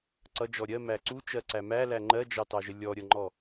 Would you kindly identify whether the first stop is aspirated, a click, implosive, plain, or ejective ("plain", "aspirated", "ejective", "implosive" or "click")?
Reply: click